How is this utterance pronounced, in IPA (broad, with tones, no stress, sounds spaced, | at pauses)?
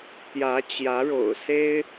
t̪ j ä˧˥ t͡ɕ j ä˧˥ ɻ o̰˨˩ ʊ̯ s e˥ ɪ̯